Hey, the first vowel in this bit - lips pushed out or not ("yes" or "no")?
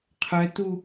yes